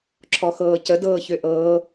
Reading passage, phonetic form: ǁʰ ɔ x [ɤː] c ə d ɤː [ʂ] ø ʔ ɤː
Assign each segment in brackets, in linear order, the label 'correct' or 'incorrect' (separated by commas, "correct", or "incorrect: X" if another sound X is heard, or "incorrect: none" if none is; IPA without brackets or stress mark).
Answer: correct, incorrect: ç